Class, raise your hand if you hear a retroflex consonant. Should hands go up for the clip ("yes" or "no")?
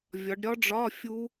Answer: yes